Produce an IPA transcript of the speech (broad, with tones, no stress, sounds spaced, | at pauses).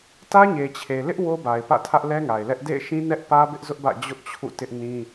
t ä˦ ɲ e˨ t͡ɕʰ e˨ l ɪ˦ ʔ w o˦ b a˨ ɪ̯ p ä̰˦˨ tʰ ä˦ ʔ l ɛ˦ ŋ a˨ ɪ̯ l ɛ˦ ʔ d ḛ˦˨ ɪ̯ ʃ ĩ˦ n ɛ˦ ʔ p ä˦ b ɪ˦ ʔ z ʊ˦ ʔ b ä̰˦˨ d͡ʑ ʊ˦ ʔ t͡ɕʰ ṵ˦˨ t ɪ˦ ʔ n ĩ˦